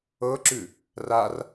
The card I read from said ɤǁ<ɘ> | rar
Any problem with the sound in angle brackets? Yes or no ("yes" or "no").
yes